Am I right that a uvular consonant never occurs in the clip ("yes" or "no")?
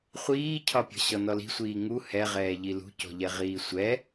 no